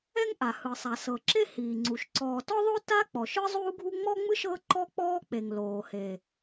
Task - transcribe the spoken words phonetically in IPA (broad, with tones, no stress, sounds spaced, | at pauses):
ɛ˥ ŋ ʔ a˩ h ɯ˩ sˤ a˩ s ɤ˩ ǁ e˥ h iː˩ ŋ͡ǀ u˩ ʃ ǀ ɔː˩ t ɔ˥ ðˤ o˥ t a˥ k͡p ɔ˩ ʃ ɯ˥ zˤ uː˥ ɡʱ u˥ ŋ͡m ɔ˥ ŋ͡m ɯ˥ ʃ ɤ˥ ǃ ɔ˥ k͡p ɔː˥ k͡p e˩ ŋ l oː˩ h e˩